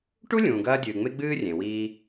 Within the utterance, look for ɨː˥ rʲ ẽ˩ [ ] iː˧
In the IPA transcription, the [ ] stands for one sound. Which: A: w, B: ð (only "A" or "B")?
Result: A